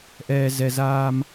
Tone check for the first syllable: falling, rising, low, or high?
low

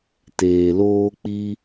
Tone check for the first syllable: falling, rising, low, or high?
low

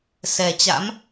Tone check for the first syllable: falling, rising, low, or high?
low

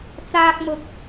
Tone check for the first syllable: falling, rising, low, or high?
high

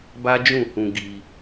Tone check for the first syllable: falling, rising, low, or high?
high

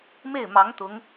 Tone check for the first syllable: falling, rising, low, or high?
falling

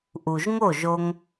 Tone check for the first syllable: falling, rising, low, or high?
low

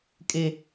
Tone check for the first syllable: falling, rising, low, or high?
low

